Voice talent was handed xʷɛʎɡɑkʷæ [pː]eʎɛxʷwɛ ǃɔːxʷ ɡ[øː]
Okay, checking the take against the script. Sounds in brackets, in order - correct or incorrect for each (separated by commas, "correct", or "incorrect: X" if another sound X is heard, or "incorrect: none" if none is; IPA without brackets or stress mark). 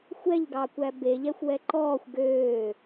incorrect: b, correct